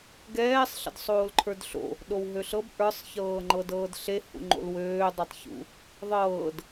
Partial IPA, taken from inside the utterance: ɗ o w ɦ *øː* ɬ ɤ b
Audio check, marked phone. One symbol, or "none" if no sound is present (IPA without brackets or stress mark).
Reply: ø